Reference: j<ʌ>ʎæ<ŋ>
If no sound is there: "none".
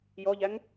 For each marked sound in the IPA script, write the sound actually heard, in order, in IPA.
ɔ, ŋ

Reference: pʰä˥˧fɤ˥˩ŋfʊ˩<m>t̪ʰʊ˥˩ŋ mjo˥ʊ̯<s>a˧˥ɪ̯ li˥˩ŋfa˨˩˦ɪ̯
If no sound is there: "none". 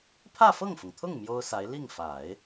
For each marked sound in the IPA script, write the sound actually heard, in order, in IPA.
ŋ, s

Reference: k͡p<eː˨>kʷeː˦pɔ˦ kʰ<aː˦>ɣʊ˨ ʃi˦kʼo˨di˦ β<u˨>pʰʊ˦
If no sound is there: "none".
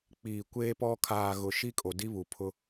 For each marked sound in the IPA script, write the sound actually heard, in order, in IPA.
iː˨, aː˨, u˨

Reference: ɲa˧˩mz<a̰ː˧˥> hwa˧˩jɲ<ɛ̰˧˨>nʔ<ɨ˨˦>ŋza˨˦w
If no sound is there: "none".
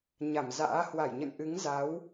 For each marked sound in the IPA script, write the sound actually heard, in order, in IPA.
a̰ː˧˥, ə̰˧˨, ɨ˨˦

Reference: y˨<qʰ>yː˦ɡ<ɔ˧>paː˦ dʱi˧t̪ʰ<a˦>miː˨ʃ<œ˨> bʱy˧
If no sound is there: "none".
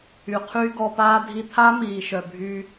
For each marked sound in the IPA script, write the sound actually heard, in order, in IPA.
qʰ, ɔ˧, a˦, œ˨

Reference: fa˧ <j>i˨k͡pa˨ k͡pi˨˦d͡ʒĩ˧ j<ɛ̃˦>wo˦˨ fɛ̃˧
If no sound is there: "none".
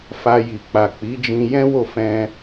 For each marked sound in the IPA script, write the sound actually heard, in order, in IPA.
j, ɛ̃˦

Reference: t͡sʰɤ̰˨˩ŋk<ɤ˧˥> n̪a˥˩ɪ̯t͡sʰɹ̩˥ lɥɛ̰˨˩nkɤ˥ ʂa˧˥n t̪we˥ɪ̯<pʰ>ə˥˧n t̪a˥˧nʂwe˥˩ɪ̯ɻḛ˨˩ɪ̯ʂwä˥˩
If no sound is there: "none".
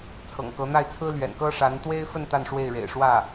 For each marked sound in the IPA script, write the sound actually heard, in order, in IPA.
ɤ˧˥, f

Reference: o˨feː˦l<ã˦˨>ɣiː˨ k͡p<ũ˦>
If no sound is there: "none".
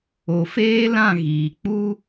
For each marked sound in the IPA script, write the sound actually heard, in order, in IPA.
ã˦˨, u˦

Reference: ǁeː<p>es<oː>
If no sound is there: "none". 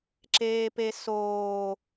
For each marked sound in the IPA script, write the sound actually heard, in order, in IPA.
p, oː

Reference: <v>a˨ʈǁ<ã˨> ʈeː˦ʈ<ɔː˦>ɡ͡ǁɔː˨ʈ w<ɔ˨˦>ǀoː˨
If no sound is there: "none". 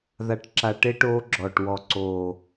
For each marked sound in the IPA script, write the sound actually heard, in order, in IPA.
ð, a˨, oː˦, ɔ˨

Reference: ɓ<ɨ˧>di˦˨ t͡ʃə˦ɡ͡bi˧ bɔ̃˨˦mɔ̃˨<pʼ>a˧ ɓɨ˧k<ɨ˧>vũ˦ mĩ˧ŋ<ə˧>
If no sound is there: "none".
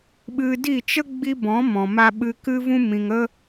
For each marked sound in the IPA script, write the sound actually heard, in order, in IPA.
ɨ˧, m, ɨ˦, ə˦

